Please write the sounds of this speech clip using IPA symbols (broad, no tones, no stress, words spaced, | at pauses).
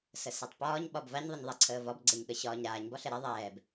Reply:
səsɛtˤpɒːɲ ɓɒbvaɲ ðˤəɲðˤɛǀʰəːvɒb ɡ͡ǀɛɲɠəɕɒːɲɾaːɲ bɒɬɛɾɛ ðˤɛːb